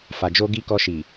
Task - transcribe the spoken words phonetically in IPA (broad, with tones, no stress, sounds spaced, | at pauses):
f a˧ d͡ʒ o˦ ɡ i˦ k ɔ˧ ʃ i˨